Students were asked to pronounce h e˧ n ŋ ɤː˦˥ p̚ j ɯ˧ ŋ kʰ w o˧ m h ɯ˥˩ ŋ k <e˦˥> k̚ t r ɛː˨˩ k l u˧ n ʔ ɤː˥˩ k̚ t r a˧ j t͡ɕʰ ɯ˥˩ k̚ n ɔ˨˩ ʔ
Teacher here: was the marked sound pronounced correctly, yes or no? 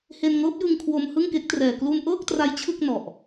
yes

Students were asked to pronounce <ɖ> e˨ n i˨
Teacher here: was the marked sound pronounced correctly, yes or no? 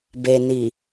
no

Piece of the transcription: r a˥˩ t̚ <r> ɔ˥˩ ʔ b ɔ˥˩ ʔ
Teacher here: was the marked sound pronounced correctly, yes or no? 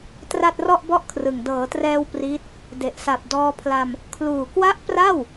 yes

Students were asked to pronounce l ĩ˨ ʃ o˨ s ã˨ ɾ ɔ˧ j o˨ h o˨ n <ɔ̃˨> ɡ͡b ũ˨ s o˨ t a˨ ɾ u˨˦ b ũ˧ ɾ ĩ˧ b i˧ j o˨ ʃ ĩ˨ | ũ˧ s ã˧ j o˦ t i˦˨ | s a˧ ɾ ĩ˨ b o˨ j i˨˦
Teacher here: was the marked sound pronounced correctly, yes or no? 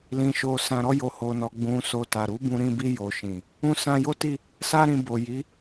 no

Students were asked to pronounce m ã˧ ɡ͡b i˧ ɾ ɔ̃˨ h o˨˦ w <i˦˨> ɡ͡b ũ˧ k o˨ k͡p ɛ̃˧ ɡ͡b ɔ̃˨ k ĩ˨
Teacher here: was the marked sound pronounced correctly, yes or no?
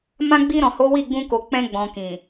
yes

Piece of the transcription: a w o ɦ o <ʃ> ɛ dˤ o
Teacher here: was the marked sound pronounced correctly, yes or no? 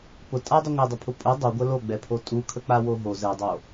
no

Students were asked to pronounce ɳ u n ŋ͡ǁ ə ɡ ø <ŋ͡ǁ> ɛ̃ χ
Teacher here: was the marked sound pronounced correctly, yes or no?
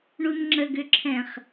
no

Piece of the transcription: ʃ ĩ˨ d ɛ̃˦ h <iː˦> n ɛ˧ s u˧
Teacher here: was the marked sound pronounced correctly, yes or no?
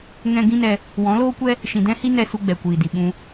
no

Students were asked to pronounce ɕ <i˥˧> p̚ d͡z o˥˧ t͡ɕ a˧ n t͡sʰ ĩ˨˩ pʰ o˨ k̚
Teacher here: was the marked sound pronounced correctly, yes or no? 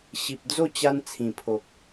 no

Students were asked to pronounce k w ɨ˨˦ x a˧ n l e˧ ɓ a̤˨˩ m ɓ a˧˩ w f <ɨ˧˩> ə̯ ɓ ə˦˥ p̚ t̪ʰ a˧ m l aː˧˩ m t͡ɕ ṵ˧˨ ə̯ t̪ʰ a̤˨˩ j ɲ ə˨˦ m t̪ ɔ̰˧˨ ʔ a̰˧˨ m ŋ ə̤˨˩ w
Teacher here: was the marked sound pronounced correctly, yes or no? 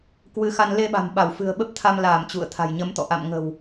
no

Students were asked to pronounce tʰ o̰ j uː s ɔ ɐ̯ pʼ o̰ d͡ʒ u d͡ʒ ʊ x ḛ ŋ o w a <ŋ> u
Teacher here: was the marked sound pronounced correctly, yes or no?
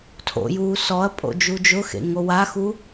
no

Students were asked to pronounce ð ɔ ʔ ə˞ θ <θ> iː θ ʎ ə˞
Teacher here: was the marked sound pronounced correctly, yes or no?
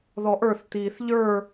no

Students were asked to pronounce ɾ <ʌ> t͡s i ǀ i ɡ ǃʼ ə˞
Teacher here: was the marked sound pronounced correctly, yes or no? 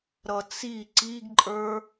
yes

